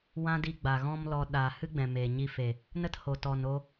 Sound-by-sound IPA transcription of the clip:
wã˦di˧ ɡ͡ba˨ɣɔ̃˦mlɔ˧ ɗa˨ hɨ˦ɡ͡bɛ̃˨meː˨ ɲi˧fe˨ | nə˦tho˨tɔ˨n o˧

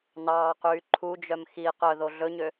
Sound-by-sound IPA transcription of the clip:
nɑːqyː ǃʰud͡ʒœm xi qœðo ɮɵɲø

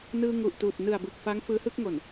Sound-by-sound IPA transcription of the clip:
nɯː˧ŋu˨˩ʔtuː˨˩t̚ nɯ˨˩a̯bɯ˨˩k̚ fa˦˥ŋ fɯː˦˥hɯ˥˩k̚ŋo˨˩n

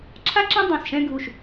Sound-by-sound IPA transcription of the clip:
ǁʰa˥ǁɛ̃˥ dˤõ˥˩sʃɛ̃ː˥ɡʱu˥˩ʃ

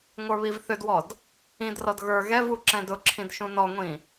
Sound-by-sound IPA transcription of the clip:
ŋʷə˞βivθʏdwɔd | ĩdrɔd ɣə˞ ɣɛvu ǁɛ̃dʊǁʰĩd ʃũnɔŋʷĩ

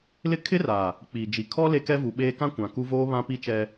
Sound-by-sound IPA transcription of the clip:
lɪ˦ kʰɪ˦ra˨ | k͡piː˨d͡ʒi˨ kʰɔ˦ le˦kɛ˦vu˨ɓeː˦ kã˦kʷã˨ ku˦ voː˦ βã˦pi˦t͡ʃɛ˦

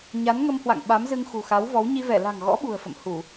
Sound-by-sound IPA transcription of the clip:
ɲa˨˦nŋə˧mhwa̰˧˨ŋ ɓa˨˦mzɨ˧ŋ xṳ˨˩ xa˨˦wvɔ˨˦w ɲi˧vɛ˧˩ la̤˨˩ŋɣɔ̰˧˥ ɓṳ˨˩ə̯fə̰˧˨m hu˧˩˨

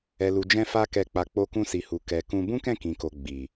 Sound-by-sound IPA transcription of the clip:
ɛ˨lu˨d͡ʒɛ̃˧fa˧ kɛ˨k͡pa˨ k͡po˧kũ˧si˨hu˨ kɛ˨kũ˧ bũ˦kɛ̃˦˨kĩ˨ko˨ ɡ͡bi˨

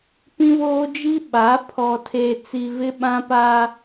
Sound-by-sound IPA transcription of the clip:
pĩ˦βoː˦d͡ʒi˦ ɓa˨˦ pʰɔ˨tʰeː˨t͡si˨ vɪ˦ɓã˦ pa˦

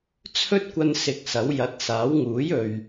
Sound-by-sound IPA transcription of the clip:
t͡sʰɵ˥t̚kʷɐ˧n sɪ˧k̚sɐ˨˥w jɐ˨˥t̚saː˨˥w ŋuː˨˥jɵ˨ɥ

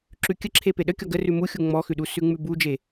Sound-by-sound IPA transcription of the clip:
ǁʉkʲəǁʰe peɗə kʲɔɡə rʉmuxʲu ŋ͡mɔxʉɗu sʉŋ͡mʉbud͡ʒe

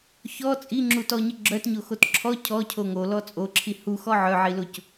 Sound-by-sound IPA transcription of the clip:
çɔ t͡sʼiŋ͡ǁutɔɲə ɡ͡ǁœtɲoxot ǁʰɔ cʰɔcʰo ŋolɔ t͡sʼoǁʰi huxɔ ʕœʕiloc

